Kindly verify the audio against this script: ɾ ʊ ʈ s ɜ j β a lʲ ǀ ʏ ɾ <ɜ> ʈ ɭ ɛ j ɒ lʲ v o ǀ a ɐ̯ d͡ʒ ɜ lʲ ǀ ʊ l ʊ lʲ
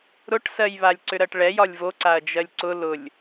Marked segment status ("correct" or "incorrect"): correct